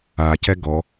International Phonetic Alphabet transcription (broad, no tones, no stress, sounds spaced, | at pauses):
a c ɛ ɡ ɔ